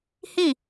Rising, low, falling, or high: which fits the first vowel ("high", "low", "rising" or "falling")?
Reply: falling